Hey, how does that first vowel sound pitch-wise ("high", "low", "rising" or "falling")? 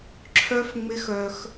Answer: high